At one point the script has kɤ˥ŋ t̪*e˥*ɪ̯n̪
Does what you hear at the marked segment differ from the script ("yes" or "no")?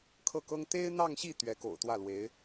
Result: no